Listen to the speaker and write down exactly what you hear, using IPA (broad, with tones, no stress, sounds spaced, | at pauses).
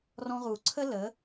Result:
r ɔ̃˧ ʁ u˨ ǀʰ ə˦ l ə˨˦